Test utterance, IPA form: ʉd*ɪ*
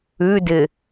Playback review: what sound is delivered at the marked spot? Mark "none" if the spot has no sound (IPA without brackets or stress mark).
ɪ